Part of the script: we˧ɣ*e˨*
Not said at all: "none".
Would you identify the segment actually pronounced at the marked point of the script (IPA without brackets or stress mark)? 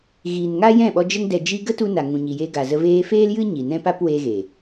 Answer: e˨